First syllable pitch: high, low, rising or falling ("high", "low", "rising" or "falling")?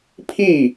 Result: falling